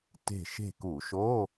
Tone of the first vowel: falling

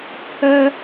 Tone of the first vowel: high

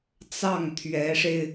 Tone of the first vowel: falling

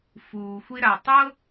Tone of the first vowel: low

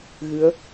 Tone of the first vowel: rising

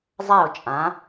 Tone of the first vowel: falling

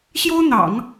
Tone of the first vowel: high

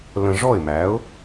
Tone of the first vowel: low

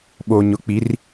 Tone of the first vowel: low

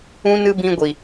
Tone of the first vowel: high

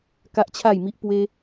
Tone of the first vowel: high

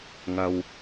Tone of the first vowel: low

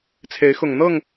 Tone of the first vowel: rising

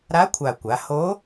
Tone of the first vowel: rising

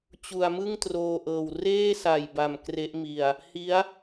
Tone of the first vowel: low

